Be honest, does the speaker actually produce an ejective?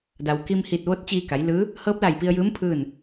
no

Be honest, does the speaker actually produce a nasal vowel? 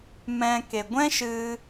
yes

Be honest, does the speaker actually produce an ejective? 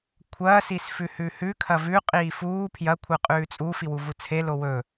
yes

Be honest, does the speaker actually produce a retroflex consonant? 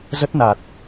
no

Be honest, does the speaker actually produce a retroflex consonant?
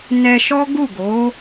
no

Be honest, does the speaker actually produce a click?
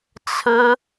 no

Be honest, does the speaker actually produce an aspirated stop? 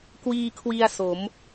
yes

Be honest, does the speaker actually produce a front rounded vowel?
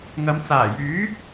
yes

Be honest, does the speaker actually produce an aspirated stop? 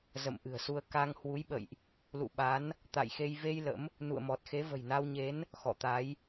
no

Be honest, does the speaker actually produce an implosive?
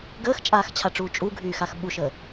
yes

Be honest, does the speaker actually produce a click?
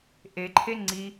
yes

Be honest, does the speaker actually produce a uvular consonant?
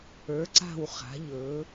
yes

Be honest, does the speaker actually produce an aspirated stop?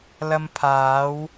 yes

